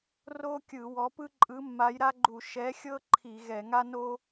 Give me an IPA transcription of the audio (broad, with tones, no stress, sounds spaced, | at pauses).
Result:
r o˥ kʲ ɯ˧˩˧ w ɔ˨˥ p ɯ˥ ǃʼ ɯ˨˥ mː a˨˥ j ɾ a˥ ɡ͡ǃ u˧˩˧ ʃ ɛ˨˥ xʲ ɤ˥ ǃʰ i˧˩˧ ɣ ɛ˧˩˧ ŋ a˥ n o˥